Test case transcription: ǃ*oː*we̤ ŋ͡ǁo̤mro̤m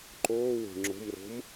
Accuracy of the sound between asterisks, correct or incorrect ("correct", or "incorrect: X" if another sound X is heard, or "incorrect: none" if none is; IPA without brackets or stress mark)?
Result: correct